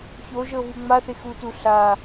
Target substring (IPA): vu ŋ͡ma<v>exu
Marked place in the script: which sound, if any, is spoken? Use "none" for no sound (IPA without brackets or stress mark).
θ